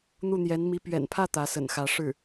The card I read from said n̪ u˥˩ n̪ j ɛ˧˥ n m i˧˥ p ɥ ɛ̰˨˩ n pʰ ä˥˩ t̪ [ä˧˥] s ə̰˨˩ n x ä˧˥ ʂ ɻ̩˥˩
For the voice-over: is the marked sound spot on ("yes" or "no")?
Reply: yes